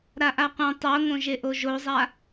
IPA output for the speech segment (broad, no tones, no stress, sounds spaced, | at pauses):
ɾ a ʔ a qʷ ã tˤ o ŋ õ ʒ e ʔ o ʒ o zˤ a